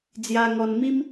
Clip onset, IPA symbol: d͡z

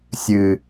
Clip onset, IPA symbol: sʲ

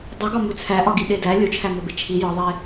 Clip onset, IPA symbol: dˤ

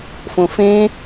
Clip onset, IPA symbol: f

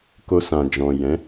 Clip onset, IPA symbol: k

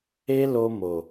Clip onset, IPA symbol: e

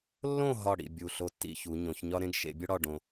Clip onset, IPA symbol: lː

